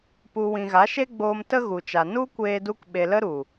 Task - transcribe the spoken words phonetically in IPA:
p u˨ w ĩ˨ ɣ a˨˦ ʃ e˦ ɡ͡b oː˧ m t ə˦ ɣ u˨ t͡ʃ a˨ n u˦ kʷ eː˧ d u˧ k ɓ e˨ l ə˦ ɾ u˨

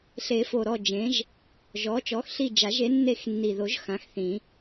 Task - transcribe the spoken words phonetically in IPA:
ɬ e˨˩˦ f o˨˩ ɾ ɔ˦˨ d͡ʒ ẽ˩˥ ʒ | ʒ ɔ˩˥ t͡ʃ ɔ˩˥ x ɬ i˦˨ d͡ʒ a˨˩˦ ʒ e˩˥ nː e˦˨ x nː i˨˩ ð o˨˩˦ ʒ x ã˩˥ x θ ĩ˨˩˦

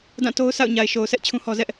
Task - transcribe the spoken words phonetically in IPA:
d ã˦˨ t o˦ ʊ̯ s a̰˦˨ ʊ̯ ɲ a˨ ɪ̯ ʃ o˨ ʊ̯ sʰ ɛ˦ ʔ t͡ɕʰ ũ˦ h ɔ˦ z ɛ˦ ʔ

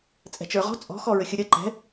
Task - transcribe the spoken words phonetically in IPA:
t͡sʼ ɛ̤ t͡ʃ ə˞ ʁ ɔ̤ t͡sʼ ɔ̤ x ɔ ɹ ɘ xʲ ə ɾʲ ɐ ǃ ɛ̤

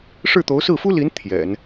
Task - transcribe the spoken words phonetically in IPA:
ʂ ɻ̩˥˩ t̪ o˧˥ ʊ̯ s ɹ̩˥˩ f u˥ l i˧˥ n t̪ʰ j ɛ̰˨˩˦ n

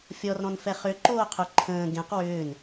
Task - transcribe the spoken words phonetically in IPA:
fʲ ɔ r ɾ ɔ̃ n f ɛ χ ʏ ǃ oː qʰ ʊ ǃʰ ə̃ː ɡ ẽ q w ʏː n

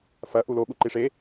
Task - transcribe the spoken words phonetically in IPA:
f ɐ ʔ u l o ɠ u ǃ i ʂ e

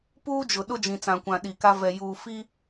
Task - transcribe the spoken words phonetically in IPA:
p uː˦ d͡ʒ ʊ˨ ɗ ʊ˦ d͡ʒ ĩ˨ t͡s ã˨ kʷ ã˨ ɗ i˨ k a˦ v ɛ˨ j uː˨ f i˦

